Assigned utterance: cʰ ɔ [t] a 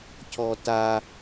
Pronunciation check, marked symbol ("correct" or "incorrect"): correct